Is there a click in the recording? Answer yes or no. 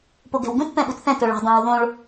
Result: no